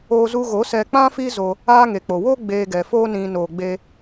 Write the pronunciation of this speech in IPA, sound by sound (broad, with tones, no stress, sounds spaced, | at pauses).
oː˧ z u˧ ɣ o˨˦ s ɛ˧ k͡p ã˦ f i˦ z o˧ | aː˦ ŋ e˨ k͡p o˨ w oː˦ ɡ͡b eː˧ ɡ ɛ˨ f oː˦ n ĩ˧ n oː˨ ɡ͡b e˧